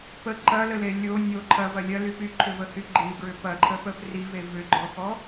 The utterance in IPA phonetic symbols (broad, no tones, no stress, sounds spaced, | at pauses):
p ə ǃ ɐ l ə l e lʲ o nʲ o ǃʰ ɐ v ɐ lʲ ɐ l y p y ǃʰ ʏ v ə h y ɡ͡ǃ i ɡ ɹ ʏ p ɐ ǃʰ ə p ə p r i v e v ʏ ɡ͡ǃ ɔ x ɔ